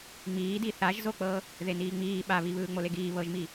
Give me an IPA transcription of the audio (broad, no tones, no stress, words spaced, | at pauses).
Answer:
ŋ͡miːdi θaʒzok͡pɤ | ðeniːŋ͡miː ɓaβi βɯːŋ͡moleɡiː βɤʒmi